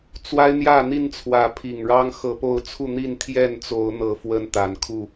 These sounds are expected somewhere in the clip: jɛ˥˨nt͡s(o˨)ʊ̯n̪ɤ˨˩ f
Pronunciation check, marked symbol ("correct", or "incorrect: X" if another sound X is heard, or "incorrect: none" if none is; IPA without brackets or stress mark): incorrect: o˨˦